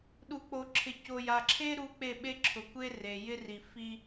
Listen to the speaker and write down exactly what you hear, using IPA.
ɗ u˨ k͡p o˨ ǁʰ ɪ˨ c o˨ j a˨ ǁʰ e˦ ɾ u˦ k͡p e˦˨ ɓ e˦ ǁʰ ʊ˨ kʷ e˦ r e˨ j ɪ˦ r i˨ f i˦

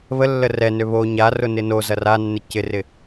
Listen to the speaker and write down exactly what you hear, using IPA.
β ə lː ə r ɛ n ø β o ɲ a r ʊ n ɪ n o z ɐ r a nː ɪ c ɪ r ɪ

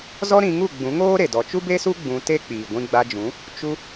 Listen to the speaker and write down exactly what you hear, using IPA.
z ɔ˦ ɾ ĩ˧ ŋ u˦˨ ɡ͡b ũ˨˦ ŋ oː˦ ɾ e˨ d ɔ˨ t͡ʃ u˦ b e˦ s u˦ ɡ͡b ũ˧ t e˦ k͡p iː˨ ɡʷ ĩ˧ ɡ͡b a˧ d͡ʒ ũ˨˦ | t͡ʃ u˧

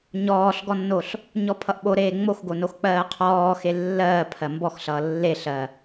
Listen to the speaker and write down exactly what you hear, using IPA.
ɲ ɔː ɬ ɡ ɔ nː o ɬ | ɲ ɔ pʰ ʌ ʔ ɓ o ɾ eː ŋ͡m o x ɡ o n o x k͡p ɜː qʰ ɔː x e lː ɜː pʰ ɜ m b ɔ x ɬ ʌː lː e ɬ ɜ

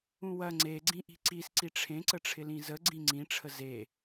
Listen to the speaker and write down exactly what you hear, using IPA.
ũ w ɐ ŋ͡ǀ e ɡ͡ǀ ĩ ʔ i̤ ǀ i s ǀ i ʈ͡ʂʰ ẽ ǀ ə ʈ͡ʂʰ ɪ l ĩ z ə ɡ͡ǀ ĩ ŋ͡ǀ ĩ ʈ͡ʂʰ ə z e

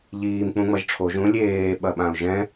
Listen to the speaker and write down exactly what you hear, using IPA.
ʎ iː m k͡p ũ ŋ͡m ɐ ʒ ʈ͡ʂʰ o ʒ ũ lʲ eː ɓ ɐ ɓ ã ʊ̯ ʒ ɛ̃

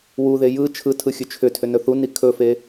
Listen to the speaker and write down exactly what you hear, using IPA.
w u ð e j ɯ t͡ʃʰ ɯ tʰ ɯ xʲ ɵ t͡ʃʰ ʏ tʰ ʏ n ɵ θ u n i kʰ ɵ f e

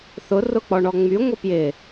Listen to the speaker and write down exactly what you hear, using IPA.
θ ʊ r ʊ k͡p ɔ ɳ ɔ ŋ͡m y ŋʷ ɪ p j ɪ

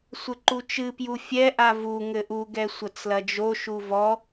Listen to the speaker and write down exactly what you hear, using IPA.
sʷ ɘ ǃ u t͡ʃ ɨ p j u fʲ ɛ ʔ a v u ŋ ɘ ʔ u ɡ ɛ sʷ ɐ t͡s l ɐ d͡ʒ o ʃ u v ɔ

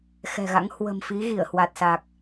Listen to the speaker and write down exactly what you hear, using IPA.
x ɛ̤˨˩ ɣ a̰˧˥ ŋ h w ə̤˨˩ m f i˨˦ ɣ i˧˩ ə̯ h w a˨˩ t̚ s a˨˩ k̚

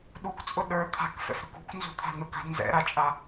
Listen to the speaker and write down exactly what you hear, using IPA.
ɗ u k t͡sʼ ʊ ɗ ə˞ t̪ʰ a̤ k f ɛ̰ f ɾ ʉ k ṳ k n z ṳ t̪ʰ a̤ n ʊ k a̤ n z ɛ̰ ɾ a t͡ʃʼ a

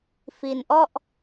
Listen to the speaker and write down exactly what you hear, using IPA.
f i˧ n ʔ ɔ˥˩ ʔ

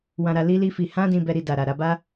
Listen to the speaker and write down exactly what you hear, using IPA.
w ã˧ ɾ a˧ l i˦ l i˦ f i˧ h ã˦ d ĩ˧ b ɛ˧ ɾ i˧ d a˨ ɾ a˨ ɾ a˧ b a˦

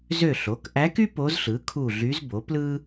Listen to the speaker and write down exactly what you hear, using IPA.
z ø˦˨ ɬ o˩˥ k ʔ æ˧˥ k y˥ p o˧˥ z ɬ ɯ˩˥ kʰ u˦˨ ɮ y˧˥ z b o˩˥ p l ɯ˥

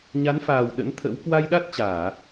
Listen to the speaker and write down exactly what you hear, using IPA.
ɲ a˨˦ n f aː˨˩ w ɗ ə̰˧˥ n t̪ʰ ə̰˧˥ w k w a˧ j ɗ a˦˥ t̚ t͡ɕ aː˧˩˨

